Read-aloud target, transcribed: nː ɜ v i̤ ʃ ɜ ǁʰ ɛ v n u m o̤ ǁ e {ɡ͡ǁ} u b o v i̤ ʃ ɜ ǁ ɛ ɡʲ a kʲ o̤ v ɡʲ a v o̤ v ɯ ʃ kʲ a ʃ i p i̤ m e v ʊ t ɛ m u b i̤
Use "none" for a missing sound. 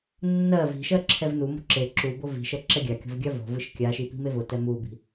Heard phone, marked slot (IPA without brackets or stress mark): ǁ